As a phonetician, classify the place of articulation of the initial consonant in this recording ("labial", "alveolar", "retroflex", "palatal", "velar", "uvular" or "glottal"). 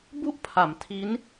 labial